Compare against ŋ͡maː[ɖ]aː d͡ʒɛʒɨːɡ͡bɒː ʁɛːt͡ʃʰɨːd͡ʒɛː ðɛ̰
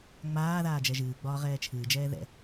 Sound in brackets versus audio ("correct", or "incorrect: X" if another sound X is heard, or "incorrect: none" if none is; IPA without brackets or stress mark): incorrect: ð